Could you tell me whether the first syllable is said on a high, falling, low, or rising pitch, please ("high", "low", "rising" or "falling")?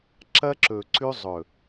high